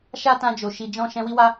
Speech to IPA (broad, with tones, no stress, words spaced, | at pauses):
ʃa˦tã˧d͡ʒo˨ ʃi˧d͡ʒɔ̃˦ ʃɛ̃˧wi˦wa˦